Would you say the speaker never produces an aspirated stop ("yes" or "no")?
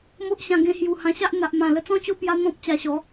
yes